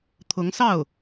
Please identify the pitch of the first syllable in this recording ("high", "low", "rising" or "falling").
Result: rising